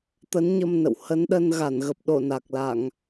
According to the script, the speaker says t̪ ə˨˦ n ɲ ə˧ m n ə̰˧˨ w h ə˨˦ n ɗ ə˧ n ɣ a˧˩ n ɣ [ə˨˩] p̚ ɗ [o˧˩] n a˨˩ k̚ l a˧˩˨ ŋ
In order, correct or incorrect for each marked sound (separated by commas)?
correct, correct